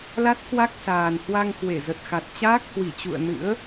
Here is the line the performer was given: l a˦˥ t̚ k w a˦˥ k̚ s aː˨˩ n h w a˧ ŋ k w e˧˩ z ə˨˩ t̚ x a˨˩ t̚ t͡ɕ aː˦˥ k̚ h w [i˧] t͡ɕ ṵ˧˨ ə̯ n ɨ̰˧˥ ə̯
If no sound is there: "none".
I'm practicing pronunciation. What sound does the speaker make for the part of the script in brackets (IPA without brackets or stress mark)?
i˧˩